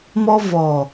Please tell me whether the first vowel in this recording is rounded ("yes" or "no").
yes